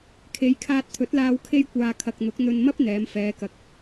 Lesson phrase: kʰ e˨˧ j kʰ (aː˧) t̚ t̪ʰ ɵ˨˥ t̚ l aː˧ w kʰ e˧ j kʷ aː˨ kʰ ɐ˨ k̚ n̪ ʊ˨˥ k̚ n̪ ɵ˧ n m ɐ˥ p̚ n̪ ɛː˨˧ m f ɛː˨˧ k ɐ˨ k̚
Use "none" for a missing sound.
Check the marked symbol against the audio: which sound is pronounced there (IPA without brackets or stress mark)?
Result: aː˧